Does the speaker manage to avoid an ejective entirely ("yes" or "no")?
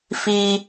yes